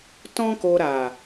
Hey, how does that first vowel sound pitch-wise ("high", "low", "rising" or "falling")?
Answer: high